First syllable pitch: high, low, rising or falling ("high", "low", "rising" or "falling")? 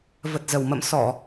low